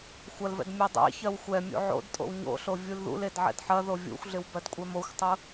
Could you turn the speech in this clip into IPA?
xʷ ɐ l v ɛ̰ d mʲ ɜ dˤ ḛ ç ɜ w xʷ ɛ mʲ ṵ ʕ o̰ d tʼ o̰ w ɲ o̰ ɬ o vʲ u l ð ṵ l e d ʕ ɛ̰ d ħ ɐ ð o vʲ ṵ xʷ ɮ ɪ w b ɜ d kʷʼ ɛ m o xʷ tˤ u

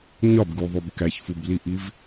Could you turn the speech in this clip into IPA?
ɲ ɒ b ɡ u ðˤ u b k æ ç f u b l i ʔ i v

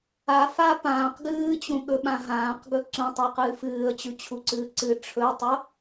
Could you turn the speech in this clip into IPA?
a f a p ãː q ɡ ɨː t͡ɕ ũ ɠ ɵ ɓ ã ɦ ãː q ɡ ɵ ǀ ũ tˤ a q ɨː f ɨː ə̯ t͡ɕ ʉ t͡ɕʰ u ǀ ɨː ǀ ɨ ʈ͡ʂʰ ɵ tˤ o

